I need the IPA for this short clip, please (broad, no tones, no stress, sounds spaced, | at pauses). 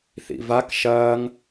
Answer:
θ ḭ v a k ʃ ɐː ŋ